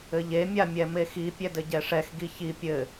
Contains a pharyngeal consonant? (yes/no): no